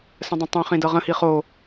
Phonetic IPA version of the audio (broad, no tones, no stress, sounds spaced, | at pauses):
s ə̃ dˤ ə̃ tˤ ĩ χ ĩ d ɤ ʁ ə̃ h i χ o